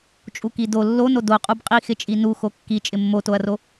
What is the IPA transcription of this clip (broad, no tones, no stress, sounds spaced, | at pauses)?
t͡ʃʼ u k i d o lː o n o d o qʼ u b qʼ i x ɪ t͡ʃʼ i n u x o kː i t͡ʃʼ ɪ mː o t o ɐ̯ r o